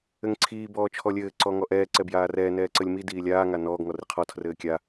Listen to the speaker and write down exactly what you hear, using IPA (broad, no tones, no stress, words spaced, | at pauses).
ɘŋǀʰiː bɔːt͡ʃʰɔlʲɘː ǀɔŋɔʔɛː ǀɛbjaːrɛː nɛːǀəlʲmi diːlʲaː ŋanɔːɡ ŋɔriqʰɔ tʰrɘːkʲa